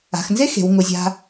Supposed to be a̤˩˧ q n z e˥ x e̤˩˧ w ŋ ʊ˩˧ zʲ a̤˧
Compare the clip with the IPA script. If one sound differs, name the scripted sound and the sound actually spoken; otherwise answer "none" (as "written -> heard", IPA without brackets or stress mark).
q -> x